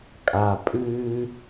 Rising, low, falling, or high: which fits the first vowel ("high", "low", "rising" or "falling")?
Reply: low